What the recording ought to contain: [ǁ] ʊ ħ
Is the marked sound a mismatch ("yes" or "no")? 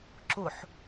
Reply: no